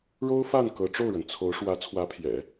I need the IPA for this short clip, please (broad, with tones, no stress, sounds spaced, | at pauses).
ɻ o˥ ʊ̯ f a˥˩ n k ɤ˧˥ ʈ͡ʂ o˥˩ ʊ̯ ɻ ə˩ n t͡sʰ o˧˥ ʊ̯ ʂ w ä˧˥ t͡sʰ w ä˧˥ pʰ j ɛ̰˨˩˦